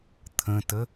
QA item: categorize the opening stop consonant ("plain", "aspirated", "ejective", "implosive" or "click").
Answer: aspirated